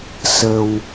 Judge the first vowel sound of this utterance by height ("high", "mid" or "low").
mid